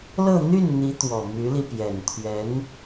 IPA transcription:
lɤ˥˧n̪y˥˩nn̪i˧˥ t̪wɔ˨˩my˧˥li˧pjɛ˨˩n t̪ʰɥɛ˧˥n

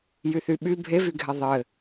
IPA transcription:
jyθyɓy bʱevyɡʱɛ ðˤɘ

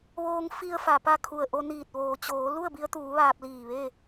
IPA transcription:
ʋoː˧ŋ fi˧ə̯ fa˩pa˥˨kʰu˧˩ə̯ʔo˧ niː˧˩t̚ʋoː˩t͡ɕoː˩˧ lu˥˨ə̯bi˧ə̯t̪uː˩˧ ʋaː˧p̚liː˧˩ ʋe˥˨

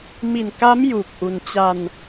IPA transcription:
mi˨˩nka˦˥m ju˨˩k̚ʔu˧n t͡ɕa˧n

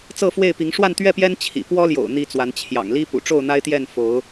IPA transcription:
t͡sɤ˥˨fwe˥˨ɪ̯pi˨˦ŋ ʂwa˥˨nt̪ɥɛ˥˨pjɛ˦n t͡ɕʰḭ˨˩ pwɔ˦ljo̰˨˩ʊ̯ n̪i˥˨t͡swa˨˦n t͡ɕʰjɑ̰˨˩ŋli˦ pṵ˨˩ʈ͡ʂo˥˨ʊ̯n̪a˦ɪ̯t̪jɛ˥˨n fo˨˦ʊ̯

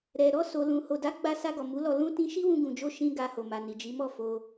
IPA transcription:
ɾɛ˨ ɾɔ˧ so˨lũ˨ ho˨da˨˦ ɡ͡ba˦ sa˧ɡɔ˨ mu˨˦lɔ˧ lũ˦tĩ˦ ʃi˦wũ˧ɡũ˨d͡ʒo˧ ʃĩ˧ ɡa˧ho˨ma˨ ni˨d͡ʒi˨˦mɔ˦˨ fo˧

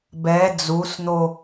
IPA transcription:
bɛ d͡zusn̪o

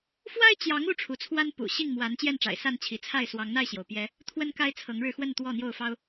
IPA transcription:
fwa˦ɪ̯t͡ɕjɑ˨˦ŋ u˦ʈ͡ʂʰu˨˦t͡sʰwa˦n pṵ˨˩ɕi˥˨ŋmwa˨˦n t͡ɕjɛ˥˨nʈ͡ʂa̰˨˩ɪ̯sa˥˨n t͡ɕʰi˨˦t͡sʰa˥˨ɪ̯ swɑ˨˦ŋn̪a˥˨ɪ̯ɕjo˩ʊ̯pjɛ˨˦ | t̪ʰwə˦nka˦ɪ̯t͡sʰɤ˨˦ŋɻɻ̩˧ xwə˥˨nt̪wɔ˥˨n̪jo˥˨ʊ̯fɑ˦ʊ̯

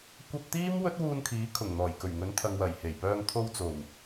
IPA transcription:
kʷɐ˧p̚ t̪iː˥mwɵ˥t̚wuː˧nkʰiː˨˥ kʰʊ˨˩ŋn̪ɔː˨˩jkɵ˨˩ɥŋɵ˨˥n t̪ʰɐ˨ŋwɐ˨˩jhe˨˩jpœː˧ŋ t̪ʰo˧wt͡so˨˩w

